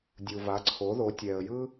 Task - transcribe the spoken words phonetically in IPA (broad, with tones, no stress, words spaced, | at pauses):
dʲu˩va˩˥ǀʰo˩˥ðo˩˥ tʲɛ˩ə̯jɯ˥